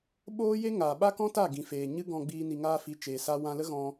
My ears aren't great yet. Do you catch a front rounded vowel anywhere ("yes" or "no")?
no